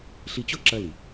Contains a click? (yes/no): yes